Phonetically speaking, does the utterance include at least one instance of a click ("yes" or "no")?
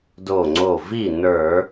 yes